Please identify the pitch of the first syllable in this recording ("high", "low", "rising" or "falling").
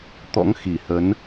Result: rising